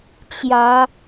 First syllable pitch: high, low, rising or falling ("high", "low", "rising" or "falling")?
rising